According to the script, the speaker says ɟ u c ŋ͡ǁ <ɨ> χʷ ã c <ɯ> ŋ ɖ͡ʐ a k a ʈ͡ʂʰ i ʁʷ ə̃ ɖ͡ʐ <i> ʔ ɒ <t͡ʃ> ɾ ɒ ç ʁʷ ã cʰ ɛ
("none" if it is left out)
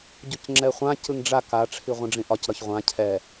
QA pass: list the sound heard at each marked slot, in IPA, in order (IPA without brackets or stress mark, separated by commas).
ɛ, ɯ, ĩ, c